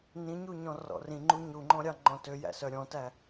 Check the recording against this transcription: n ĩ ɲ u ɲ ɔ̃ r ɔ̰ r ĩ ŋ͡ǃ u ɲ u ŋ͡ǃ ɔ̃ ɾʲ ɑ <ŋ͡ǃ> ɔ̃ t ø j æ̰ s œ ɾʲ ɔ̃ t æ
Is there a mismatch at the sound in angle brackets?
no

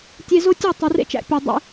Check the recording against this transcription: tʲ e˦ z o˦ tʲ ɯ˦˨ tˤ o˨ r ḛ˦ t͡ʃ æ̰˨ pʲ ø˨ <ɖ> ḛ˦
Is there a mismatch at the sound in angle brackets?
yes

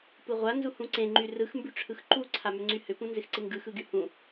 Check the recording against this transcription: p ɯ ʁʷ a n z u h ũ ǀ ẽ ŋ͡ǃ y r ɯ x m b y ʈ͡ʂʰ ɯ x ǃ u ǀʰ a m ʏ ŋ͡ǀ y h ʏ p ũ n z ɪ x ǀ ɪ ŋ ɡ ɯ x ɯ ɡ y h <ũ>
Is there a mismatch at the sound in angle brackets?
no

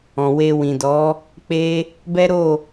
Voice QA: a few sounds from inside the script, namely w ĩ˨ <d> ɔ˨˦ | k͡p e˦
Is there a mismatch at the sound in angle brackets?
no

